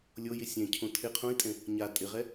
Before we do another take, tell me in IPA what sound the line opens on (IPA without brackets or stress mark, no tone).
lʲ